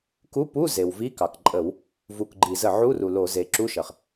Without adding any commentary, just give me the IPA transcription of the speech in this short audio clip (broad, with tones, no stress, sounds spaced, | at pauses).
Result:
k u˧˥˧ p u˧˥˧ z e˩ w v i˧˥˧ k ɑ˩ k ǃʼ ə˧˩˧ w | v u˧˩ k ɡ͡ǃ i˧˩˧ z ə˧˩ ʕ u˧˥˧ r u˩ l o˧˩˧ z e˩˧ ǁ u˧˥˧ ʃ ə˩ χ